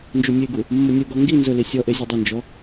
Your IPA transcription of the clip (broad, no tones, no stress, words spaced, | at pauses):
nd͡ʒumʲeɡu | mːʊnʲuɡɔ ŋɡi nzʊli sʲɔʔe zʲʊdˤɪnd͡ʒɔ